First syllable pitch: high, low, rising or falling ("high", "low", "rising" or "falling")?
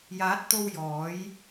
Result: rising